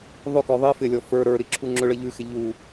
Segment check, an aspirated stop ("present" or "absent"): present